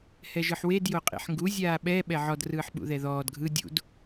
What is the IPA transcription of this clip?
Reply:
hɛʒɯħwed joqʼḭħŋɡu zʲaːɓɛ ɓɛʕɔd rɯːħɓṵðɛðɔːd ɡʱɯ dʲṵd

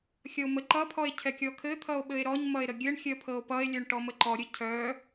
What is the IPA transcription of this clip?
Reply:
xʲʌo̯məǃʌpʰɔe̯ cʰɛkʲɔkʰɘt̪ʰʌo̯ ɓɘe̯ɾɔɲmʌe̯ ɾəɡʲɘɳxʲœ pʰɤo̯pʌe̯lʲœɳ ʈɔməǃɔɾʲɘ cʰœ

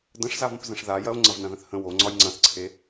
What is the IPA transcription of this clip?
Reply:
də̃ʂzavə̃p zə̃ʂðajɐo̯ ŋ͡ǀɐvnɐ̃ðə̃θhə̃ wo ŋ͡ǀɒjŋ͡ǀɐ̃θǀʰe

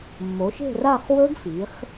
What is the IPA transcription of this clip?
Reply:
mːo˩˧ʃe̤˦˨ra˦˨χ wɵ˦˥ɡ fi˩˧χ

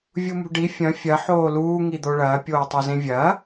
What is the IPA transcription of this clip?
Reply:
vʲumṳɖi fʲɐ̃ fʲɐ ħoːluː ŋid̪oɭɐː pʲoːtˤozẽvʲɐː

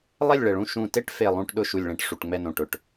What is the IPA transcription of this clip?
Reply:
lˠɛ˦˨lʲɭɛ˨˩ɭũ˦˨ ʃũ˨˩te˦˨ʈfe˨˩ lˠũ˦˨ʈɗʊ˦˨ ʃu˨˩lʲɭɛ̃˨˩ʈ ʂu˨˩ʈŋ͡mɛ˦˨nõ˨˩ ʈʊ˨˩ʈ

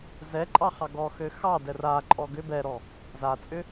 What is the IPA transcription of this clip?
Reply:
zɛ ǃʼɑχɑɡɔ xøxɑ dɛraǃʼɔ ɡʏ bɛɾɔ | zat͡sʼʏ

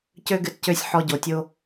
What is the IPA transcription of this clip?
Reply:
cø˦ɡɨ˧tcø˦˨sʲ ħɔ˧ɟo˨tʲo˦

